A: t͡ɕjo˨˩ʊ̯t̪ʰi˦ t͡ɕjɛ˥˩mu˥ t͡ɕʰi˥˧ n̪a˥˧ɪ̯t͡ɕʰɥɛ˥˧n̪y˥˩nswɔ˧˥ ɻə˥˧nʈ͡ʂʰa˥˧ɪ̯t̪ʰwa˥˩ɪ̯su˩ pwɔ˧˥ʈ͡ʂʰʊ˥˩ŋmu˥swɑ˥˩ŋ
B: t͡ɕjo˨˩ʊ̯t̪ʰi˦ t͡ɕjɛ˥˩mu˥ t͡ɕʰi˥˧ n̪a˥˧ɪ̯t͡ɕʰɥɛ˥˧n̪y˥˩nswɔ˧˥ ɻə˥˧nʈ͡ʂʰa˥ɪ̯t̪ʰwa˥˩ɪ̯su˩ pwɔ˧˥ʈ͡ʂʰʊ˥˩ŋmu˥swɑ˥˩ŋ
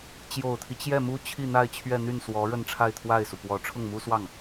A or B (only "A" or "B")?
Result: A